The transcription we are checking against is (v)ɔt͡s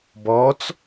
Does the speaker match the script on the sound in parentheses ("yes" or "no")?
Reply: no